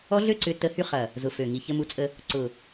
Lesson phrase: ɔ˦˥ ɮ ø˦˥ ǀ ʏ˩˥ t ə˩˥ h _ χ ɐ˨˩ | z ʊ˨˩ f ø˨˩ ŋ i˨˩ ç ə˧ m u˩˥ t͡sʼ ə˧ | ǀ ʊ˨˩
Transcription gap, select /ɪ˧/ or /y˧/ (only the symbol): y˧